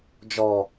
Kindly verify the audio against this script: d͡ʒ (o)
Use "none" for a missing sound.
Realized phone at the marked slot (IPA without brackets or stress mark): ɔ